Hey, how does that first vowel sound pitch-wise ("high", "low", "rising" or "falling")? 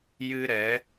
high